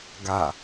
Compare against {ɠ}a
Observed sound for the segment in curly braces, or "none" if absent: ɡ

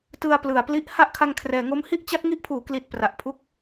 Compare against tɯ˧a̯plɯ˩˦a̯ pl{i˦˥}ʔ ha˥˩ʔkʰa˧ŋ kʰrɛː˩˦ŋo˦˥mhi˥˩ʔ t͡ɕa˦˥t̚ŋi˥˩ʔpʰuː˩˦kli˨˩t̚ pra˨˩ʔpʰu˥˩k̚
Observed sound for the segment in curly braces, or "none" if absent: i˦˥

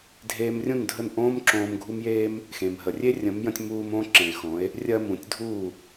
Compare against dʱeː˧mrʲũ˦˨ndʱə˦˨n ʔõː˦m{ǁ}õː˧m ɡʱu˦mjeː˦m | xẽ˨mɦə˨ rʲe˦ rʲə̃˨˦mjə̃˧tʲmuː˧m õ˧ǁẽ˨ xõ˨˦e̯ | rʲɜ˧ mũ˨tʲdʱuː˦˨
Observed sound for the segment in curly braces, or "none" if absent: ǁ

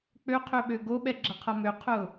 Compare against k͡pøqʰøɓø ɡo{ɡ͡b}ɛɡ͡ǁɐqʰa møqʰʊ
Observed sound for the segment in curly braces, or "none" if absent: ɓ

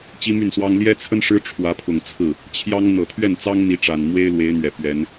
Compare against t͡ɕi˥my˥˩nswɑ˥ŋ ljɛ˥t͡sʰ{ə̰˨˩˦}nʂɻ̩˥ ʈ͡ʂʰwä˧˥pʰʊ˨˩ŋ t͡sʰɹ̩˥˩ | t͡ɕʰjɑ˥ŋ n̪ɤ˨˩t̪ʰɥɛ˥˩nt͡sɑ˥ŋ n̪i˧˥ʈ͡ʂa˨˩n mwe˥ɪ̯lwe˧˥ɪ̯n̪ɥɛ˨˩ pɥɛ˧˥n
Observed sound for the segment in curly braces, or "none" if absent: ə˥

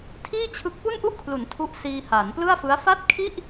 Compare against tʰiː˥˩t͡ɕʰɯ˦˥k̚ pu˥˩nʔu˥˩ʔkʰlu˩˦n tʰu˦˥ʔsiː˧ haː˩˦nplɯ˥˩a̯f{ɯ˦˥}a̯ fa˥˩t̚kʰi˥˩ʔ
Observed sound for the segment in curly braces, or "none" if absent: ɯ˦˥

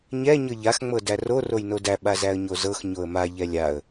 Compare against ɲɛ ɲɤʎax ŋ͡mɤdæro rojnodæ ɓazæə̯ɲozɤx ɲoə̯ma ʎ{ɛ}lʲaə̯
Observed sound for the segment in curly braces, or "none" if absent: ɛ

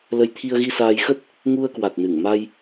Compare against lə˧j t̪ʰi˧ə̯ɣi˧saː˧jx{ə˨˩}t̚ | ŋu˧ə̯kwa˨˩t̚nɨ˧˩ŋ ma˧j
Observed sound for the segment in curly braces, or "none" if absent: ə˦˥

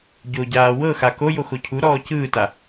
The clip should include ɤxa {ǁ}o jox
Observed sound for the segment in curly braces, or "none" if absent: k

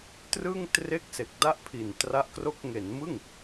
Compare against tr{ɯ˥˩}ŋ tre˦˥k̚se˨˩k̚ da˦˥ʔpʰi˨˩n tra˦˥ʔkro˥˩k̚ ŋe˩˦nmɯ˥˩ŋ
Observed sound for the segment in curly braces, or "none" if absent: ɯ˥˩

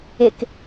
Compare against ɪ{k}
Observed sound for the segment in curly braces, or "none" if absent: k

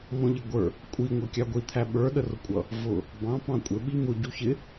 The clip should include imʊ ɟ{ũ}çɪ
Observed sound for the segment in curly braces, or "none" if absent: u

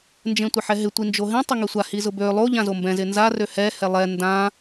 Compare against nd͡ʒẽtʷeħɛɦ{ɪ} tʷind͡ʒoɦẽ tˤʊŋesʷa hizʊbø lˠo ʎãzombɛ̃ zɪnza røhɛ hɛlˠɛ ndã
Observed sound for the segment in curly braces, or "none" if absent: ɪ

